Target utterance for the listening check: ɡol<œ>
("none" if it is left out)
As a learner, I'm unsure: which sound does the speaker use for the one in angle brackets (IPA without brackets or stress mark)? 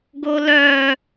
œ